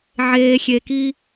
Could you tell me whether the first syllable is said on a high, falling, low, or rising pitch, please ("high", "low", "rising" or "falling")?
low